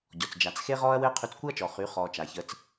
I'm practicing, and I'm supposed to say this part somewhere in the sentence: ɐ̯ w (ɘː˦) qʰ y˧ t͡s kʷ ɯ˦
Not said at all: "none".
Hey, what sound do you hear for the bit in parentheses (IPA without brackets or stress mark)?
ɘː˦